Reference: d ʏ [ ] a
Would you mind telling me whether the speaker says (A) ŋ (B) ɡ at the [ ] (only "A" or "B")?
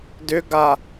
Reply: B